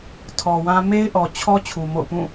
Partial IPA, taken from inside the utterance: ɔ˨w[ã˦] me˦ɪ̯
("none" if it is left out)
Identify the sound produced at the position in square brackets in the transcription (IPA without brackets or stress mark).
ã˦